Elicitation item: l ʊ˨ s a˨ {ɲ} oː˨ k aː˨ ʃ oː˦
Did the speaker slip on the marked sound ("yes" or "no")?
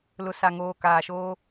yes